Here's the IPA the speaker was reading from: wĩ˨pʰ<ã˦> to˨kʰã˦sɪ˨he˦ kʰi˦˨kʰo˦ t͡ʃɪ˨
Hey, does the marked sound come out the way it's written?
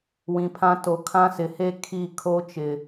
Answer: yes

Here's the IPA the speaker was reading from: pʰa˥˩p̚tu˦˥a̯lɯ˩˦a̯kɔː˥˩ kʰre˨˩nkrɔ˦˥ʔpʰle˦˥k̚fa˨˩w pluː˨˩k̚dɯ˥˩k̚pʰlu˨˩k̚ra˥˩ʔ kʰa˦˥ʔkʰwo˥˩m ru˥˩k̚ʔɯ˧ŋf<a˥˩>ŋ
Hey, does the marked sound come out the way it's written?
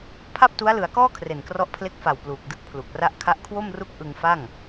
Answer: yes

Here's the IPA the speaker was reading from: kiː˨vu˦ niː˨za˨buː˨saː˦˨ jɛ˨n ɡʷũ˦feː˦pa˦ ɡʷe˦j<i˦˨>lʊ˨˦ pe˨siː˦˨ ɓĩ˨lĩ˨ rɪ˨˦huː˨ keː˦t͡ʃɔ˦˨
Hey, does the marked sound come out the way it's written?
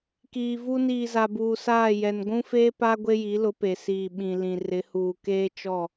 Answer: no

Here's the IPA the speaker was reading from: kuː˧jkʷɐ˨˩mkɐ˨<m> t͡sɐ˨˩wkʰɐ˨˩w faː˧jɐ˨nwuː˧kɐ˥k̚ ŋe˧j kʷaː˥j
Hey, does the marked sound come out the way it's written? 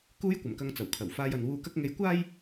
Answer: no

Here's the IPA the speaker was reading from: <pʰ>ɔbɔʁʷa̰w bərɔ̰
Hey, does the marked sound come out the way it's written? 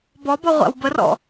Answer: no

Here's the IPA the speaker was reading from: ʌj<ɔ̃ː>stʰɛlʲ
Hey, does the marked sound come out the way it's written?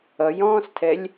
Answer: yes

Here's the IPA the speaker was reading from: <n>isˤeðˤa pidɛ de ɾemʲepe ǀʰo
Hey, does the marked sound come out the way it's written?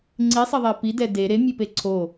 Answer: no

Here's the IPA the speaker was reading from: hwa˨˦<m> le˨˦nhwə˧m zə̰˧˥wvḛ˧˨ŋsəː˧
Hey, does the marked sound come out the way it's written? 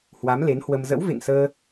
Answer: yes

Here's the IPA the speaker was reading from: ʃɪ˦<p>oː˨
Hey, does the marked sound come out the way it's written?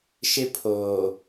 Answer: no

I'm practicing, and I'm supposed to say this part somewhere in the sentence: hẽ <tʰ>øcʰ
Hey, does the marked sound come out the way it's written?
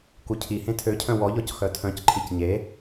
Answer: yes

